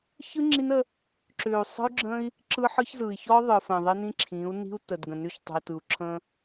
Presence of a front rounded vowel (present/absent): present